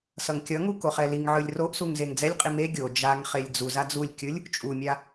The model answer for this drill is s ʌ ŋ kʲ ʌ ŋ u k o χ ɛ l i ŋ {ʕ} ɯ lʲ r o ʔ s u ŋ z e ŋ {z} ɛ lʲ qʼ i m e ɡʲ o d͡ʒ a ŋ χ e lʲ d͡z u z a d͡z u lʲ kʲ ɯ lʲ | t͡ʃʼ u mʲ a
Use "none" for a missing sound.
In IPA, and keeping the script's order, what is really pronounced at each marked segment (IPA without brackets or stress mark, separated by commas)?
ʕ, d͡z